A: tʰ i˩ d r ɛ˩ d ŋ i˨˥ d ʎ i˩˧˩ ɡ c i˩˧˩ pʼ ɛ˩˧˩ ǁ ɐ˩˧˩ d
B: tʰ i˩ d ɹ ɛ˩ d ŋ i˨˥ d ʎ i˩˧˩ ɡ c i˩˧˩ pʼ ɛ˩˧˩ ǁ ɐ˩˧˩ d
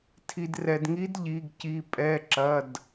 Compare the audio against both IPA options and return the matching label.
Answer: A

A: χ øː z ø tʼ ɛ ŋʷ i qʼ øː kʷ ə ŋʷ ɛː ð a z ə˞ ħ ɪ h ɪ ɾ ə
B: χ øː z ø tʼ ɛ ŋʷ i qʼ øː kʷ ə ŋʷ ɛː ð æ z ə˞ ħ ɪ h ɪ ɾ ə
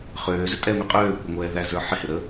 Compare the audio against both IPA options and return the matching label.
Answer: B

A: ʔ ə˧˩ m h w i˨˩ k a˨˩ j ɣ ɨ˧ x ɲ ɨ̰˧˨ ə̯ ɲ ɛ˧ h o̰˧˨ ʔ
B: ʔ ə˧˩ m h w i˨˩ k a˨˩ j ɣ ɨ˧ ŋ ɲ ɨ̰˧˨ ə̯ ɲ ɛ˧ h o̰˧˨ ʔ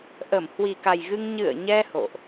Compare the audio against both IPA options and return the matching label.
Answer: B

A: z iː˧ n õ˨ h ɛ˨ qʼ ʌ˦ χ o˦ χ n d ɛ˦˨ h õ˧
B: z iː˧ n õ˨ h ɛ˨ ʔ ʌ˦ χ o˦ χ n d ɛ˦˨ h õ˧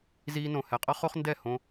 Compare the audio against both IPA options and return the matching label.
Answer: A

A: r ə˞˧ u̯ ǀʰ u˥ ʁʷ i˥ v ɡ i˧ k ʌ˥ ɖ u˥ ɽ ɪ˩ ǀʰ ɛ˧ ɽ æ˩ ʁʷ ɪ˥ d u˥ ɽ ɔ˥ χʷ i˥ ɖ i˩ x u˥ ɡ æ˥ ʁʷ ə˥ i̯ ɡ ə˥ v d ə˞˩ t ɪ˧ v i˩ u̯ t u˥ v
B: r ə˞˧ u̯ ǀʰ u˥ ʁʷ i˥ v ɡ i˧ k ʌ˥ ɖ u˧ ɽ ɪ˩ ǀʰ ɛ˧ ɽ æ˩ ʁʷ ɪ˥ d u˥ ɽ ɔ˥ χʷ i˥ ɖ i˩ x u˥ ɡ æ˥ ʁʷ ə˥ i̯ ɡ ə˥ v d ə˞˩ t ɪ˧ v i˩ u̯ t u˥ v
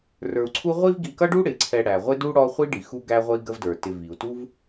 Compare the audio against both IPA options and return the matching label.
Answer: A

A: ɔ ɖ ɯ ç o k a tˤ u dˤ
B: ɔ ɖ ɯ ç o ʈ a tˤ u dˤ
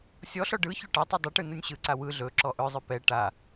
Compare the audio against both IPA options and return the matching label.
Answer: B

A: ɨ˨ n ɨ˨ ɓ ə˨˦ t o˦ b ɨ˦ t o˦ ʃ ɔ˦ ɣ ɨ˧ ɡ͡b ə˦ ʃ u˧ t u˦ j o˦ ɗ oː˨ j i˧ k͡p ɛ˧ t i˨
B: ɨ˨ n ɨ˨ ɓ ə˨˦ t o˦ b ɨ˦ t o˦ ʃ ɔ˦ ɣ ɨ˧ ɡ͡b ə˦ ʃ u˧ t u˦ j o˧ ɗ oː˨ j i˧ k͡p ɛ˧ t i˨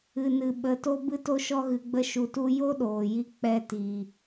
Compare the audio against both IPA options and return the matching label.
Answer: A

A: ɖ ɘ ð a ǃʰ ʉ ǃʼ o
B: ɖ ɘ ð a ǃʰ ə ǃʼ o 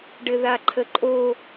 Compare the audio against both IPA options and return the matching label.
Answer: B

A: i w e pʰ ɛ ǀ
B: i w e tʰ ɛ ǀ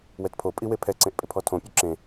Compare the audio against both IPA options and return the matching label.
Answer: A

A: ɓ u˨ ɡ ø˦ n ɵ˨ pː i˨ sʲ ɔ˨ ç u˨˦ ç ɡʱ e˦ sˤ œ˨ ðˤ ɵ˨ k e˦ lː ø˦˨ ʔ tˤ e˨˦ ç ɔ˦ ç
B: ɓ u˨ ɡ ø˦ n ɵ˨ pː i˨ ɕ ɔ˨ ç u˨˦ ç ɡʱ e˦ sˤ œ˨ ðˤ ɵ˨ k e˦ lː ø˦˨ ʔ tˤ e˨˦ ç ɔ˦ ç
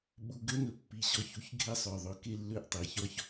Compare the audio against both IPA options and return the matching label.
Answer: B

